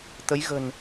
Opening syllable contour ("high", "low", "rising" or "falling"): rising